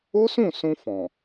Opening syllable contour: high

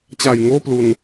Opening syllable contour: low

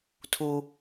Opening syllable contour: high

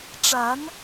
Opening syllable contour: rising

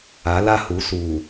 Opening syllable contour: rising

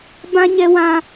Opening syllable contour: high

